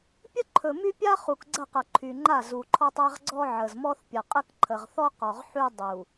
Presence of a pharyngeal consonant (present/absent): present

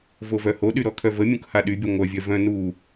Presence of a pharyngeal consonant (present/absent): absent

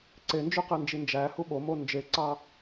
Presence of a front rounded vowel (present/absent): present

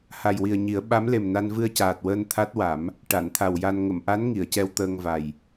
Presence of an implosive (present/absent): present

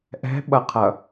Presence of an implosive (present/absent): present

